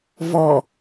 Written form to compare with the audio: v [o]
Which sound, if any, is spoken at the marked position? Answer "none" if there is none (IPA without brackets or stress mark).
ɔ